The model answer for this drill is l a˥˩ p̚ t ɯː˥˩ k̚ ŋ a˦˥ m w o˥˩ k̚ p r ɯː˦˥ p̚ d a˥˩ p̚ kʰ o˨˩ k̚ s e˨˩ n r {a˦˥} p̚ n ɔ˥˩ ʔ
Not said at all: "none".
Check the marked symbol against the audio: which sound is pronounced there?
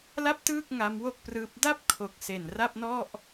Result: a˥˩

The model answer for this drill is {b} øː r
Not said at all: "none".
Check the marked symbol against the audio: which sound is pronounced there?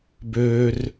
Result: b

